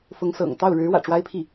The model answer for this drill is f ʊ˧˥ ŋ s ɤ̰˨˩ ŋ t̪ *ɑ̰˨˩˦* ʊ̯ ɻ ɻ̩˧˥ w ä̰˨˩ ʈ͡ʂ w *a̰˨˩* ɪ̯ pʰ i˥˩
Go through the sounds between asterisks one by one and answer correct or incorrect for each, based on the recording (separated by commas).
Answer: incorrect, incorrect